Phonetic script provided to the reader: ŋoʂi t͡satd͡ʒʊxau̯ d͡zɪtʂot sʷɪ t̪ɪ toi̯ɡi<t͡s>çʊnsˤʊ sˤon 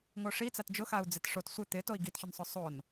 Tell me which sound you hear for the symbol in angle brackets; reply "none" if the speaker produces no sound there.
t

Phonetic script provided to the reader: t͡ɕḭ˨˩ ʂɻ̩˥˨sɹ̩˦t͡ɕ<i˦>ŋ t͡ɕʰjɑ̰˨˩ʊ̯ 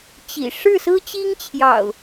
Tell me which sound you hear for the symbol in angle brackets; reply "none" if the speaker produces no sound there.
i˦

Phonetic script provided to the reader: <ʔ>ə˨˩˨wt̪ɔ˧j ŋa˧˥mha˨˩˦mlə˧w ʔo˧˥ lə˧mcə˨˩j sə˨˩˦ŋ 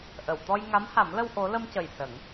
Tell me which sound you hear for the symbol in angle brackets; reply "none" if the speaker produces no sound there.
ʔ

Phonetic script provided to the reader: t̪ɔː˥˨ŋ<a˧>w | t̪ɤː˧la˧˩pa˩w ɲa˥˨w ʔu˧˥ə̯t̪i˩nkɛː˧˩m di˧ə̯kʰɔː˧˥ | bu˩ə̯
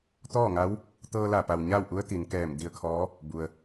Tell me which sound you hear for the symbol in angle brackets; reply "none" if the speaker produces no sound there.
a˧˥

